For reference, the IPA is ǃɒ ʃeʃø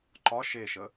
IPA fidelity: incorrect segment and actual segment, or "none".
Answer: ø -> ə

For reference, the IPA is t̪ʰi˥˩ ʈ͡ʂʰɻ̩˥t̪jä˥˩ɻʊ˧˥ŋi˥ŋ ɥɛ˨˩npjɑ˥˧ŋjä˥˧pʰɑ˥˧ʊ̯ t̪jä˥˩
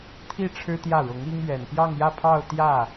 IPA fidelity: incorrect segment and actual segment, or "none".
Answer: none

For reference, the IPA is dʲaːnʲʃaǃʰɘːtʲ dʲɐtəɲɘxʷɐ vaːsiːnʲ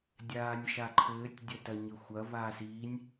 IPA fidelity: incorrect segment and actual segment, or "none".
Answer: ə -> ɐ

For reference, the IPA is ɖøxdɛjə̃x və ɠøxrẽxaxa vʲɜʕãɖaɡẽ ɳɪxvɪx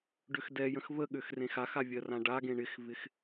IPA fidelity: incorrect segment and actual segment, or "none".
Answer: ʕ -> r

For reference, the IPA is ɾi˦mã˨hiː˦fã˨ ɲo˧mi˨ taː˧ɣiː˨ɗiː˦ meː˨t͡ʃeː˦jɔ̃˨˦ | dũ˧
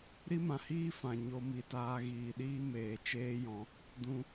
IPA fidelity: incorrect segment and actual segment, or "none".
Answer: none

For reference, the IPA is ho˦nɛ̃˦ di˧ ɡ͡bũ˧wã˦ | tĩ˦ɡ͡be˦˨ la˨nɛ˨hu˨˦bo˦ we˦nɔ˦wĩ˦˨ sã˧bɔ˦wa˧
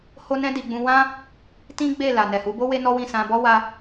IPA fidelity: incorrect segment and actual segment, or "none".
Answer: none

